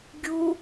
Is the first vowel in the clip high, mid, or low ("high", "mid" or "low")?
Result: high